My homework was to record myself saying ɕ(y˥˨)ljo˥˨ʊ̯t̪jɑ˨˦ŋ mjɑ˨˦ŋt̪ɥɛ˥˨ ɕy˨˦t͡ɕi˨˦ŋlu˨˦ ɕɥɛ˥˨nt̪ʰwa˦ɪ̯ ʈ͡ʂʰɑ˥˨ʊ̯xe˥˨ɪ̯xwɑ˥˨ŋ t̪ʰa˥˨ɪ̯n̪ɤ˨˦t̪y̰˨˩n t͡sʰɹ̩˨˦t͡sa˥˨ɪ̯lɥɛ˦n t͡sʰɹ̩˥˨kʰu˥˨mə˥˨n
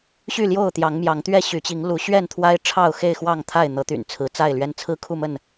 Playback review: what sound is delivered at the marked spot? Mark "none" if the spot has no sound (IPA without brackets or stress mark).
y˥˨